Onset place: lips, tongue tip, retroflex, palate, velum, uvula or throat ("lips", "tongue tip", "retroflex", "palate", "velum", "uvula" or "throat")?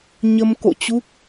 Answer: palate